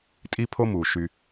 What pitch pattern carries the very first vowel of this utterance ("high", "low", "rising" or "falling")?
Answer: high